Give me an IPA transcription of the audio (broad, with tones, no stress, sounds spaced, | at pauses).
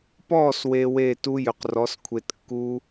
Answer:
p ɔː˥˩ s w e˨ w eː˥˩ t u˦˥ j ø˨ q r ɔ˩˥ s kʷʰ e˨ t kː u˦˥